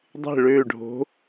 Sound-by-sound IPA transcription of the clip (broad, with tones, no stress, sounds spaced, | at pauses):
dˤ e̤˦˨ ɭ øː˦˨ ɖʱ o̤˧˥